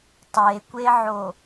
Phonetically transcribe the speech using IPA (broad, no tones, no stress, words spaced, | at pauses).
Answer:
tˤekʷeʕo